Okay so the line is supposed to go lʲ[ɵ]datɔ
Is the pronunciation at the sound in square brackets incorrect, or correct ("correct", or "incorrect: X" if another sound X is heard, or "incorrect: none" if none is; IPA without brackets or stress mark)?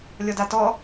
incorrect: ɔ